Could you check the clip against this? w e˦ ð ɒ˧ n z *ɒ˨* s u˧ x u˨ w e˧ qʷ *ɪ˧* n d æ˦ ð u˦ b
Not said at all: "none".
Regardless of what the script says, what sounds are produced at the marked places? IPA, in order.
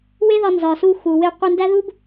ɒ˨, i˧

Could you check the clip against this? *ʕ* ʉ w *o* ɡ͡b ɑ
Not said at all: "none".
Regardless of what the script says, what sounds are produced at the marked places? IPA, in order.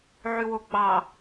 ʕ, o

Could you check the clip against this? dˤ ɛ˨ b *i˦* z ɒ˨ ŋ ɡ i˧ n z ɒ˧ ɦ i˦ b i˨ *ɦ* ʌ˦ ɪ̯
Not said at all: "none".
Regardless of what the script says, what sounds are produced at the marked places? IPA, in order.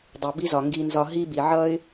i˧, ʕ

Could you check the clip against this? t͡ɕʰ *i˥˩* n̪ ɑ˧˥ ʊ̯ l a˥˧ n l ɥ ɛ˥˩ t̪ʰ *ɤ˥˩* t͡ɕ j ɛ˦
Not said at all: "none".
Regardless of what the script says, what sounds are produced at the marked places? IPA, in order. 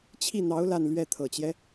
i˥˩, ɤ˨˩

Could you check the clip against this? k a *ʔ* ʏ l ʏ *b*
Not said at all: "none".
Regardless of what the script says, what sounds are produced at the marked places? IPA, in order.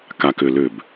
k, b

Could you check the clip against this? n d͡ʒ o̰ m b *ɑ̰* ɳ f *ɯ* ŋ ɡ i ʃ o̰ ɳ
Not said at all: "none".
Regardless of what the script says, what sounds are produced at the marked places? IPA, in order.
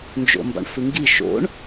ɑ̰, ɯ

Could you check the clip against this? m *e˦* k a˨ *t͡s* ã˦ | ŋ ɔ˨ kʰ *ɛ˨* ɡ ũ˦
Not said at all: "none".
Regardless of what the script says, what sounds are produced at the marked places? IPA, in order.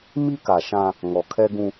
i˦, ʃ, ɛ˦

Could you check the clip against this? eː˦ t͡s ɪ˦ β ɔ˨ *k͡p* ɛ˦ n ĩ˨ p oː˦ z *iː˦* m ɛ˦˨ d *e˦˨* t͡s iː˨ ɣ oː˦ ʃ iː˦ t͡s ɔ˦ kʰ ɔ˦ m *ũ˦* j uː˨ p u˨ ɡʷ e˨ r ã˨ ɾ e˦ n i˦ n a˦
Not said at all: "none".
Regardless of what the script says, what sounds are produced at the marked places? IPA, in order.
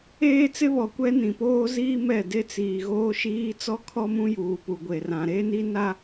kʷ, iː˦, e˦, ũ˦

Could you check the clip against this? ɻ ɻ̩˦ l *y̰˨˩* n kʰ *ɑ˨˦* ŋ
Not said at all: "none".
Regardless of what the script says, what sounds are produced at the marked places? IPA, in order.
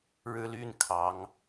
y˦, ɑ˨˦

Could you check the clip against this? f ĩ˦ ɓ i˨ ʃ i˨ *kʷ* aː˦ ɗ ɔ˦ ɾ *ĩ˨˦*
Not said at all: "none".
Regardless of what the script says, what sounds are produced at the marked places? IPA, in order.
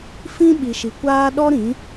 kʷ, ĩ˨˦

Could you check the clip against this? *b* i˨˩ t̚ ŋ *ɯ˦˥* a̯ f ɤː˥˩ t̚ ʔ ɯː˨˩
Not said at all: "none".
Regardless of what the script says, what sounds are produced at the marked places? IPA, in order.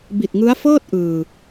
b, ɯ˦˥

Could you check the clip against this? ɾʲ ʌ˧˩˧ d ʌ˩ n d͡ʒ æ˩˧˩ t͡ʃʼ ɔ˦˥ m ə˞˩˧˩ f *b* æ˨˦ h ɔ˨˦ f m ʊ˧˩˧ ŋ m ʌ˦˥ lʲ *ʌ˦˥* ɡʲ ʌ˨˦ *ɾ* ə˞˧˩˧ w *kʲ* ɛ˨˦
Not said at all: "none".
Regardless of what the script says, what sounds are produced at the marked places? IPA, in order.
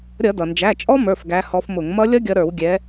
ɡ, ʌ˦˥, ɾ, ɡʲ

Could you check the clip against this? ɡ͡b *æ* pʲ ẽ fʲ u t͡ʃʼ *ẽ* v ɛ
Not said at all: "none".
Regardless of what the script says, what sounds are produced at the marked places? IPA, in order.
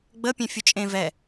ə, ẽ

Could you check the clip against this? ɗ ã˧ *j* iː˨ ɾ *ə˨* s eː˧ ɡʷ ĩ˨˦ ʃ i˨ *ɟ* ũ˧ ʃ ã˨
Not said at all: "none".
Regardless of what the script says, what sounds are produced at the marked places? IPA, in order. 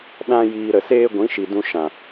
j, ə˨, d

